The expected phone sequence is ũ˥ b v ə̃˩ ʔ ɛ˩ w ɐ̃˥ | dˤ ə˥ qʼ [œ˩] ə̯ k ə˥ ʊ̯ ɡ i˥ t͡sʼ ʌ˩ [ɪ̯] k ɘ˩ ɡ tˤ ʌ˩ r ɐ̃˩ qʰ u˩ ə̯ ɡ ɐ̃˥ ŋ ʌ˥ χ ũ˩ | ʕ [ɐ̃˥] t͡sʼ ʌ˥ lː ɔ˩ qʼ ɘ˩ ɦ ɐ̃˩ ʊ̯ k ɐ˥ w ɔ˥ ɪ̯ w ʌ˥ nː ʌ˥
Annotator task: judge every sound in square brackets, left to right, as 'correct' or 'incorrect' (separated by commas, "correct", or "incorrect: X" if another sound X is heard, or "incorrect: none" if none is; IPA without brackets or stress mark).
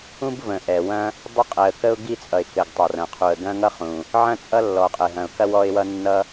incorrect: ɛ˩, correct, correct